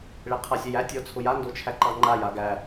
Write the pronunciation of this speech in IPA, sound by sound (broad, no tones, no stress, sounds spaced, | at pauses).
ɭ e qʰ a sʲ æ j æ tʲ ɔ t͡sʰ ʊ j a n d o t͡ʃʰ æ ǃ ɑ ŋ͡ǃ a j a ɡ æ